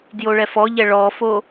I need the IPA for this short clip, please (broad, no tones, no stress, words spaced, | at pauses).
djoɭɛfɔʎɛ ɭɔfo